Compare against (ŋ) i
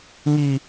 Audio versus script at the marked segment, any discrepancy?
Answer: no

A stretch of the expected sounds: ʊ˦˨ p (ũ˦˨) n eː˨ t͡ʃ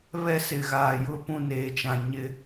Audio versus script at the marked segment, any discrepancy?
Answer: no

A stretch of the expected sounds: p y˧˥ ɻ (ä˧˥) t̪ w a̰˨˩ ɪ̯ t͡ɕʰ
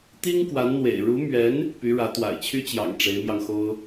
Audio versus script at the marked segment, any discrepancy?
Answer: no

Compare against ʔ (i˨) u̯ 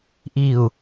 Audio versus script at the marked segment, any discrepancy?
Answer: no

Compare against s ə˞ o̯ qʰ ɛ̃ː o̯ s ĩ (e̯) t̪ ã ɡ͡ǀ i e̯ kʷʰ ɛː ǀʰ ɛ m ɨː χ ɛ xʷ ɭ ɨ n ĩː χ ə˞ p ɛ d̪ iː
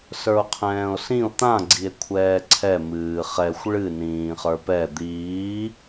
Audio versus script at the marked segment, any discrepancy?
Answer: yes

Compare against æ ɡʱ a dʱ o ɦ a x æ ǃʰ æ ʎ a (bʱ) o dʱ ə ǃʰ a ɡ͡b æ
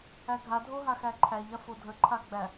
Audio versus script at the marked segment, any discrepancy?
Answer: yes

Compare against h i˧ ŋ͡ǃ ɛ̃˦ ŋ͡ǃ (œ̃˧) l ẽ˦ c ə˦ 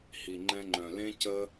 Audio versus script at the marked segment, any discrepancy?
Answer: no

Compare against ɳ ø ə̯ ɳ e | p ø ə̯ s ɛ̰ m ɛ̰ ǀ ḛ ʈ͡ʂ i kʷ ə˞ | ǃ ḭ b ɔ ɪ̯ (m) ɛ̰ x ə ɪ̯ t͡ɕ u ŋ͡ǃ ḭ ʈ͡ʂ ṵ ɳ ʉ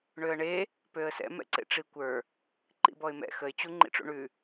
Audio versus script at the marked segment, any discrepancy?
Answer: no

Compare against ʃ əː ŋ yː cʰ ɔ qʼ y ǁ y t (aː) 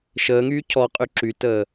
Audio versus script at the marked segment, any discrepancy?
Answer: yes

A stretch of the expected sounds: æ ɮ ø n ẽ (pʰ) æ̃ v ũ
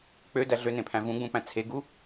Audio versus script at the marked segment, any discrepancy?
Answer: no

